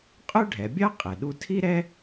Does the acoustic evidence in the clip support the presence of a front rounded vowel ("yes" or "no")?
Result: yes